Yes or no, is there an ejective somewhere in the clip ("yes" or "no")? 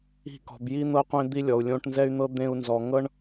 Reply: no